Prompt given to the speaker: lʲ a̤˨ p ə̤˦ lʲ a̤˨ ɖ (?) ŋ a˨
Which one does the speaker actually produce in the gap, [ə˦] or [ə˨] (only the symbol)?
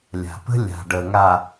ə˨